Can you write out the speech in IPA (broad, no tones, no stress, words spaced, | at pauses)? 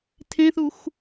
tʰẽθux